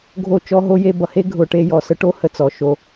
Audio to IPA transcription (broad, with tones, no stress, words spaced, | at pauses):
ɡʱo˦˨ t͡ʃɔ˦ɦo˦ je˧bʌ˨he˦ ɡʱʊ˨ʈe˧ jɔ˨sə˦ ʈo˦ hə˨t͡sɔ˨ʃo˧